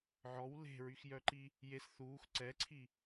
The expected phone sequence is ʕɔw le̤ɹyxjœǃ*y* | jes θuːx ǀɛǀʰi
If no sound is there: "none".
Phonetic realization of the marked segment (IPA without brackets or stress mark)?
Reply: i